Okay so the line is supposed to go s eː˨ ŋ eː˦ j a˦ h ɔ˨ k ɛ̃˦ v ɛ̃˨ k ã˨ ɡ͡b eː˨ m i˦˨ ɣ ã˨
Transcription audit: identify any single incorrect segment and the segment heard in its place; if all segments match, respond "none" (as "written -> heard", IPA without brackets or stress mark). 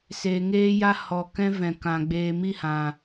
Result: ɣ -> h